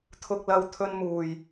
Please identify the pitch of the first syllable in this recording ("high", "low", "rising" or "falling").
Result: low